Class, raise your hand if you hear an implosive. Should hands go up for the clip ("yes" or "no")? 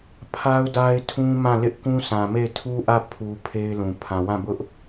no